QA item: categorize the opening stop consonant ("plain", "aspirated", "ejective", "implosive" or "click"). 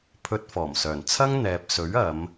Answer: aspirated